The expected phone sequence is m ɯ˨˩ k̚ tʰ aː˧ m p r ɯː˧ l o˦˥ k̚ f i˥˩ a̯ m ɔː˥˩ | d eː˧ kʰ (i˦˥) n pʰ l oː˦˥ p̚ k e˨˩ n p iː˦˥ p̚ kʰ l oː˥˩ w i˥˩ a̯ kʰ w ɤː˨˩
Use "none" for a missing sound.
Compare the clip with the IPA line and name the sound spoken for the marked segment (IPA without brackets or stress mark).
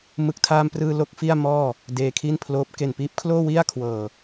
i˥˩